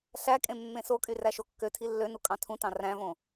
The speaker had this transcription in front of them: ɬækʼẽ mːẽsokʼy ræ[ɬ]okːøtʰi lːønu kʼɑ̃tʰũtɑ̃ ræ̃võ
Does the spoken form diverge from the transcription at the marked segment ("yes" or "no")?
yes